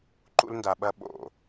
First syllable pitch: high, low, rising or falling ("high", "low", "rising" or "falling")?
high